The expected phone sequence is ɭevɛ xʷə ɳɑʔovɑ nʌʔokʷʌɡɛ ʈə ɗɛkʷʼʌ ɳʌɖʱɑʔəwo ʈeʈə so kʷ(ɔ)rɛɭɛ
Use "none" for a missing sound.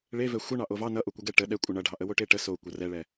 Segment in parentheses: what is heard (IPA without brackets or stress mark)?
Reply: ʌ